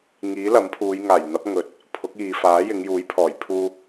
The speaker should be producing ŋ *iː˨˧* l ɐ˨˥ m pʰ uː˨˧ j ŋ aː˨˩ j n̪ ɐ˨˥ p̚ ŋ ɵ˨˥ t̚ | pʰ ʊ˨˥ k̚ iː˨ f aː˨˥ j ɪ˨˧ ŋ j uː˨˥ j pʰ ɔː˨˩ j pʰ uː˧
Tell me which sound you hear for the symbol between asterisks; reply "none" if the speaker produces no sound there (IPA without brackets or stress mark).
iː˨˥